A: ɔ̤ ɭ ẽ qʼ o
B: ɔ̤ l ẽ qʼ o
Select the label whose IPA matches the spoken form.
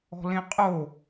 B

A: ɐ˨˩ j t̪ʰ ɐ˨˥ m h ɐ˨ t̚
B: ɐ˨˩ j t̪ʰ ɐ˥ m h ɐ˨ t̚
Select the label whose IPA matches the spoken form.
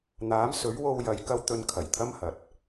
B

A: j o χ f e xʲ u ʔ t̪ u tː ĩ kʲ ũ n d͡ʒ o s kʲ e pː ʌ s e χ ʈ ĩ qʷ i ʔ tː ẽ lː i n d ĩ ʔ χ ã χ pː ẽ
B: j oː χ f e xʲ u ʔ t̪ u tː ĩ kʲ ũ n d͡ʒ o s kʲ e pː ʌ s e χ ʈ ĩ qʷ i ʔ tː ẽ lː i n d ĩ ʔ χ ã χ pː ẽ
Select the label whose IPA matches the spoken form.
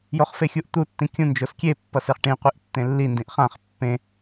A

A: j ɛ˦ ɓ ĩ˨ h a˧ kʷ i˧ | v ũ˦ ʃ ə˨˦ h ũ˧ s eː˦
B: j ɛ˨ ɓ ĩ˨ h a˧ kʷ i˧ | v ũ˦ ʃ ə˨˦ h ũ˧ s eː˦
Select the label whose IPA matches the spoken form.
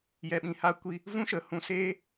B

